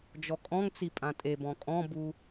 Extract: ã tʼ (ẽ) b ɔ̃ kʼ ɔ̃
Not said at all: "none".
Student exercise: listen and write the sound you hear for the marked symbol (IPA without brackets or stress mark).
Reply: e